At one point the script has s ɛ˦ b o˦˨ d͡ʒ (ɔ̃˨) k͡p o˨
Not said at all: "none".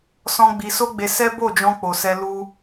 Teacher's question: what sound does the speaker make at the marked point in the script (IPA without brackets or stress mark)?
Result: ɔ̃˧